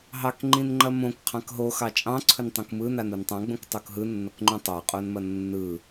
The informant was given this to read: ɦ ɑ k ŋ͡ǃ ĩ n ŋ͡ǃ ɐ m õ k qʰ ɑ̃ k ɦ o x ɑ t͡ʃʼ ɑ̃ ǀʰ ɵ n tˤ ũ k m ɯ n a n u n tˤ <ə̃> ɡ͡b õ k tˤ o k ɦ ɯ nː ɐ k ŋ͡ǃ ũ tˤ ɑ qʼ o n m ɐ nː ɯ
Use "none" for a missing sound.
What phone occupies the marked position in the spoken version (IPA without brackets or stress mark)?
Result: ɑ̃